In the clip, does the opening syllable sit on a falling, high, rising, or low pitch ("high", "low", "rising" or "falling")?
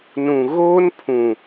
low